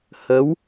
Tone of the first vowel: rising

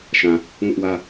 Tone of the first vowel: low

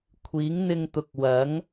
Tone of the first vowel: rising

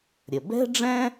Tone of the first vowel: low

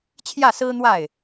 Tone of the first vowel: falling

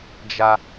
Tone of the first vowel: high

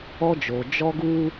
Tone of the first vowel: high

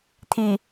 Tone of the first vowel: low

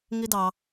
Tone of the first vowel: high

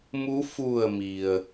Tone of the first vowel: rising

